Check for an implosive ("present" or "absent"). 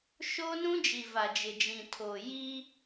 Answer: absent